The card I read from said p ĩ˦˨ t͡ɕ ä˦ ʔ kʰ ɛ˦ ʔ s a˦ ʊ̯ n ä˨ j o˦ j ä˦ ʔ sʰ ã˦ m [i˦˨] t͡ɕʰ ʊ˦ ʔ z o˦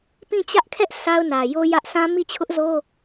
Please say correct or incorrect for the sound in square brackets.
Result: correct